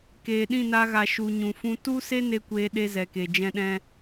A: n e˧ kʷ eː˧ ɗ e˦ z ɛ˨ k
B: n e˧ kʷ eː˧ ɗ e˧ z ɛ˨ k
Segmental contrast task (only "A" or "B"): B